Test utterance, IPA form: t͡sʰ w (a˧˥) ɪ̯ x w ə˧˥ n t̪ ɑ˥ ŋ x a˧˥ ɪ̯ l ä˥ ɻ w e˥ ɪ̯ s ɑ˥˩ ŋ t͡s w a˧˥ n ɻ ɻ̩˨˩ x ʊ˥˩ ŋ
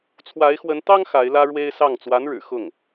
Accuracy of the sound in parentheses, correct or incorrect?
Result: correct